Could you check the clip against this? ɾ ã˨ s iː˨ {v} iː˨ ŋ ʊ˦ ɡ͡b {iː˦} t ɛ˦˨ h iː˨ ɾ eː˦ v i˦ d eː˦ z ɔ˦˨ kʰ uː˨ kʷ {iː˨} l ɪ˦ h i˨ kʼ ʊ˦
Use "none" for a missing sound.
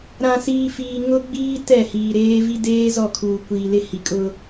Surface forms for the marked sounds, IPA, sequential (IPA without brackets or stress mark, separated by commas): f, iː˦, iː˨